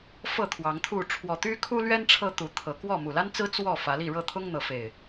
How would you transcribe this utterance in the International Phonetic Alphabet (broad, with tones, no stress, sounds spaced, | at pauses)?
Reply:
f ɤ˥˨ t̪ʰ w ɑ˨˦ ŋ t̪ʰ u˥˨ ʈ͡ʂʰ w ɔ˨˩ t̪ y˦ kʰ u˦ l ɥ ɛ˦ n ʈ͡ʂʰ ɤ˦ t̪ u˨˦ t̪ʰ ɤ˨˦ k w ɔ˥˨ m u˨˩ l a˦ n t͡s ɹ̩˦ t͡s w ɔ˥˨ f ä˨˦ l i˥˨ ɻ ɤ˥˨ t̪ʰ ʊ˦ ŋ n̪ ɤ˨˦ f e˨˩ ɪ̯